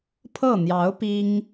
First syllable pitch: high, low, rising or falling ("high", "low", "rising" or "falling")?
falling